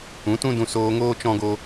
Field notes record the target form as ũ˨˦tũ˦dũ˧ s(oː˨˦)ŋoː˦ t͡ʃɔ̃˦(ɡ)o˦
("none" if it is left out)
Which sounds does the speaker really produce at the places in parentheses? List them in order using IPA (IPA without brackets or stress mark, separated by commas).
oː˧, ɡ